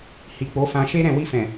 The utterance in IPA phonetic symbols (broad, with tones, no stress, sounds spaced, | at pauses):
h i˨ k͡p o˨˦ f ã˧ ʃ e˦ ɾ ɛ̃˦˨ w i˧ f ɛ̃˨